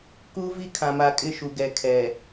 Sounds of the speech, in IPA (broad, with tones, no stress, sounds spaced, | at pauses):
k u˦ v i˦˨ kʰ ã˨ m a˨ kʼ ɪ˦˨ ʃ u˨ ɡ ɛ˨ kʰ ɛ˨